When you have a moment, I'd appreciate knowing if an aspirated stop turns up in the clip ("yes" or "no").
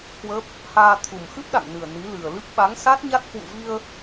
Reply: yes